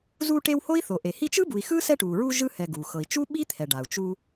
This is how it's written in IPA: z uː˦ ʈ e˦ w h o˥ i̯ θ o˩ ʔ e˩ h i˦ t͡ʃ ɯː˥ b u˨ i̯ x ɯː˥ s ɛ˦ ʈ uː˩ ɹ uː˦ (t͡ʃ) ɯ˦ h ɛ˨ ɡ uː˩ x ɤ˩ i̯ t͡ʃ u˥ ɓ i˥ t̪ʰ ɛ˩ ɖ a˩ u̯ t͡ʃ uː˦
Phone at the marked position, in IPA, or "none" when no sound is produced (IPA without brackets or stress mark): ʒ